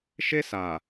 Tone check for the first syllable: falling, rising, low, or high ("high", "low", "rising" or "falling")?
high